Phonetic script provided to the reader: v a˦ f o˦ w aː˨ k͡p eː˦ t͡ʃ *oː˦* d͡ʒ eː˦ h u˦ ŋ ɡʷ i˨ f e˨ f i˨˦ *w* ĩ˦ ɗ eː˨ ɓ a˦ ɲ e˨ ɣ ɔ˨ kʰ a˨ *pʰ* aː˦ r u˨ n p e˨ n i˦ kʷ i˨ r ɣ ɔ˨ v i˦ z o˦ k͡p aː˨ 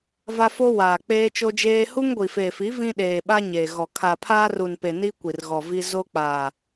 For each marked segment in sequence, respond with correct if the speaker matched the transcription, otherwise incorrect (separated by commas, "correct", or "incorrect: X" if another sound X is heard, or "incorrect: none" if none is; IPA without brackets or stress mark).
incorrect: o˦, incorrect: v, correct